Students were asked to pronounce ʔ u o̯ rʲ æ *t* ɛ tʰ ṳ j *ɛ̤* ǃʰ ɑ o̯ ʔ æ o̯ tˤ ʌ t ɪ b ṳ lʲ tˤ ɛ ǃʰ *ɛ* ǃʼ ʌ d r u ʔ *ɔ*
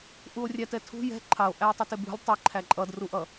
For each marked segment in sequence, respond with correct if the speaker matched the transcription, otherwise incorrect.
correct, correct, incorrect: æ, incorrect: ʌ

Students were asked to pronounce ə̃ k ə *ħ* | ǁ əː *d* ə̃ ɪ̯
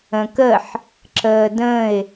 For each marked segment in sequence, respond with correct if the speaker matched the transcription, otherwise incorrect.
correct, correct

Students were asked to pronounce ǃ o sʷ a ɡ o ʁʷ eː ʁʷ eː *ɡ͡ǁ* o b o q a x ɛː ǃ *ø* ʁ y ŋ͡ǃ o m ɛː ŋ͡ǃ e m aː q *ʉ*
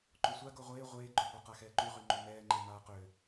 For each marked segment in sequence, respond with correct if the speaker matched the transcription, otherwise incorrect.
incorrect: ɡ͡ǃ, incorrect: y, incorrect: ø

